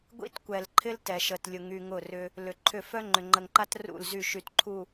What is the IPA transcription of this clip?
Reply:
ɡʷḭ˦tkʷɛ˨lǃʰɪ˦l tɛ˨ʃə˨tlʲʊ˨ ŋy˨ŋʊ˦˨rʏ˦ | lʏ˨ǃʰʏ˦˨ fœ˦ŋ͡ǃʏ˨ŋ͡ǃə˨ŋǃa˦t rṵ˦˨lzy˦˨ ʃy˨t ǃʰu˨

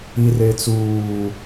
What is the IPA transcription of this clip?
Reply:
ir et͡suː

